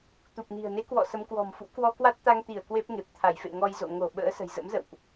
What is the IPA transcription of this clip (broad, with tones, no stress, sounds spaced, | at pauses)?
t̪ u˨˩ p̚ n i̤˨˩ ə̯ n e˨˦ k w ɔ̰˧˨ s ə˨˦ m k w ɔ̤˨˩ m f ṵ˧˥ k w ɔ˧ k w a˦˥ t̚ t̪ a˧ ŋ t̪ i˧˩ ə̯ k w e˦˥ p̚ ŋ e˨˩ p̚ t̪ʰ a˧˩ j f ḛ˧˨ ŋ ɔ˧ j z o̰˧˨ ŋ o˧˩ ɓ ə̰ː˧˥ s ə̤˨˩ j z ə̰˧˥ m z ə̰˧˨ w ʔ